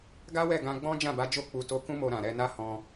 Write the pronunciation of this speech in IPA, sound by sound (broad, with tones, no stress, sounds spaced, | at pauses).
ɡ a˦ w ɛ˦˨ ɡ ã˧ ɡ͡b ɔ̃˦ d͡ʒ ã˦˨ b a˨˦ d͡ʒ o˦˨ k͡p u˧ t o˧ k ũ˦ m o˧ ɾ ã˨ ɾ ɛ˧ n a˦ h ɔ̃˧